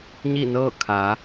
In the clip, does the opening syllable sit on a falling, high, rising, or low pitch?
falling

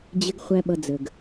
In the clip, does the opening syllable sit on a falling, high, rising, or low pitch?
high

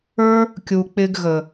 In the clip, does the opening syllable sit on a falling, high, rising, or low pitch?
high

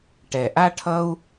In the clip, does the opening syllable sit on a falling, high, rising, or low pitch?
low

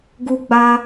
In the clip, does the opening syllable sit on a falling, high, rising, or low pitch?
high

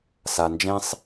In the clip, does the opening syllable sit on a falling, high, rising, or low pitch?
low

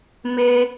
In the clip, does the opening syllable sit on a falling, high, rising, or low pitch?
high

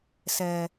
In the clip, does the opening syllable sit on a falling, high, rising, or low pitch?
high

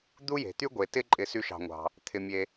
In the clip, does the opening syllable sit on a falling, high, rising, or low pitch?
high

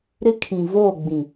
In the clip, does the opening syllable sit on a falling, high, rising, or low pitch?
high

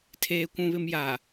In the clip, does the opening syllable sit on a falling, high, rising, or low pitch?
high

